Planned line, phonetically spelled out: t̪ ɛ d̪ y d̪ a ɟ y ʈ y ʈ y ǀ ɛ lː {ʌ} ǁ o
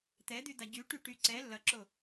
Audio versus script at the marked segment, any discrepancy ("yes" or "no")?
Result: no